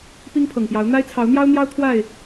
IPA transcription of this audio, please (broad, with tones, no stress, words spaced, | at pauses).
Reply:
pi˦ŋpʰɤ˨˩ŋpjɑ˨˦ʊ̯ n̪a˦ɪ̯t͡sʰɑ˨˦ʊ̯n̪jɑ˦ʊ̯n̪jɑ˦ʊ̯ t̪ʰwa˥˨ɪ̯